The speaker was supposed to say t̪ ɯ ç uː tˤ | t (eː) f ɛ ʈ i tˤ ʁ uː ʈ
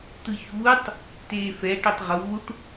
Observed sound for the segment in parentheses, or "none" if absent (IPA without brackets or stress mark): eː